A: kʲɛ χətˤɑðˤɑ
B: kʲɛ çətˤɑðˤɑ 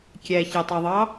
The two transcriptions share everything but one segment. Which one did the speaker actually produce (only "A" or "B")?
B